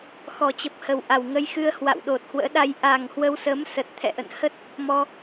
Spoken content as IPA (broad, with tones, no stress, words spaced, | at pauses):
xɔ˨˩t͡ɕə˨˩p̚hə˨˩w ʔa˨˩wŋə˧jxɨ˧ə̯ hwa̰˧˨wɗo˨˩t̚hwə̰ː˧˥ɗa˧j ʔa˨˩ŋ hwə˧wsəː˨˦m sə˨˩t̚t̪ʰɛ̰˧˨ʔə̰˧˨n hə˦˥t̚ | mɔ˧